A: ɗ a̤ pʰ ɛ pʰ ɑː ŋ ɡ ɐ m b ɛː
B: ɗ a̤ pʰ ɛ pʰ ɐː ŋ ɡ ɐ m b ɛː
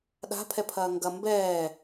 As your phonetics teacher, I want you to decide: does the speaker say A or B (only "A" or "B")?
B